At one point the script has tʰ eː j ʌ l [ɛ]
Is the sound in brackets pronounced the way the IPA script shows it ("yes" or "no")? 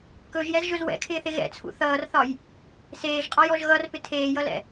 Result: no